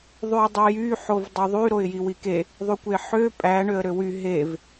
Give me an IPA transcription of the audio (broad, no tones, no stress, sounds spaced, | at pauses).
ðˤ y ə̯ dˤ e j y ħ o v dˤ o ðˤ y ɾ o ɪ̯ j i w i k e | ðˤ y kʷ e ħ ø pʼ æ ɳ ø ə̯ ɾ ø w y ɦ e v